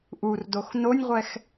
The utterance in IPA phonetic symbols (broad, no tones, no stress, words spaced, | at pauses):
ʔurdox nonʲʁʷɛx